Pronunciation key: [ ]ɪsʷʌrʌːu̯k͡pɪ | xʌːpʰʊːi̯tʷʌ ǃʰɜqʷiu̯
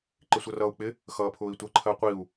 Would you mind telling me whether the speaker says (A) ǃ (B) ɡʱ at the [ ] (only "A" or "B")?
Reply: A